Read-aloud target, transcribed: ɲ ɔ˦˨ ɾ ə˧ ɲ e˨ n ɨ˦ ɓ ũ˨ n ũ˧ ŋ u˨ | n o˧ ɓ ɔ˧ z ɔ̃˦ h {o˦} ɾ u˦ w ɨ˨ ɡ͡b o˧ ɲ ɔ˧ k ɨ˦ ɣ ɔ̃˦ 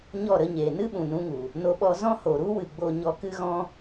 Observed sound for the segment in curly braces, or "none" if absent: o˨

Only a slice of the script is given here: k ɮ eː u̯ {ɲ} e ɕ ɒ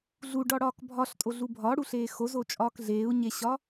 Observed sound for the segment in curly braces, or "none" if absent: ɲ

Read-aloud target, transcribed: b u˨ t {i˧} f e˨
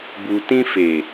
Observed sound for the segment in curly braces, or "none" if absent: ĩ˧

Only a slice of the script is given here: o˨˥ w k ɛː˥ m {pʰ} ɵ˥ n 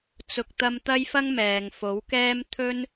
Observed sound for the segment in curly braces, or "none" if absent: t̪ʰ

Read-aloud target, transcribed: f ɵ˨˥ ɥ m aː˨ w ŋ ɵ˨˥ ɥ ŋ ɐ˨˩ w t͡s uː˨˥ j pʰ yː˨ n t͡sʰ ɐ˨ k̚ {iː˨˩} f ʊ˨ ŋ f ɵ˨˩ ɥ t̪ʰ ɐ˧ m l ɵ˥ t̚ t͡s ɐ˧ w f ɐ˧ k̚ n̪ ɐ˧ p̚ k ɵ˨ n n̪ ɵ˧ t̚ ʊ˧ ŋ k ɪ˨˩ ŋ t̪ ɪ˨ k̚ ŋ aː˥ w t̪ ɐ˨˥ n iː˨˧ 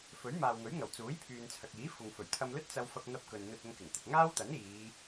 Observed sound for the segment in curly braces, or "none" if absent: iː˨˥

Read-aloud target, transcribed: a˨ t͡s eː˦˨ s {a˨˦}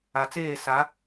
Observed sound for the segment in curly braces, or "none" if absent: a˨˦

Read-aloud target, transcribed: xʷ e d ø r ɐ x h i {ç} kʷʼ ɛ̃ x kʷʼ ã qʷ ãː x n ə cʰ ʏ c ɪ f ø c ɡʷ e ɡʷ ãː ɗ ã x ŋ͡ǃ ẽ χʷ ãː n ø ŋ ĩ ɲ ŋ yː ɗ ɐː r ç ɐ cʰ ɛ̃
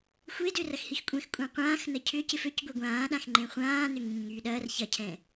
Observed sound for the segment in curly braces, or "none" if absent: x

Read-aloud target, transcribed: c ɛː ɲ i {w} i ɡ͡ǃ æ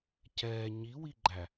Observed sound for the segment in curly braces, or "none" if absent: w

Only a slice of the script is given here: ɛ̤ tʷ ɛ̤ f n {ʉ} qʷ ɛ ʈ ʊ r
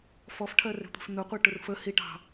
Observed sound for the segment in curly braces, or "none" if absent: ʊ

